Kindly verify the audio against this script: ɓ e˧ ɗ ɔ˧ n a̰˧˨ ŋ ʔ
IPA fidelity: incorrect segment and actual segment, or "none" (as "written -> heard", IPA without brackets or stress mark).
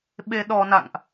none